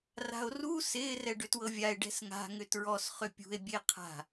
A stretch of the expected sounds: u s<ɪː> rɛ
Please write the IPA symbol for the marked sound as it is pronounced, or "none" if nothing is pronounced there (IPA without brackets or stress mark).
ɪː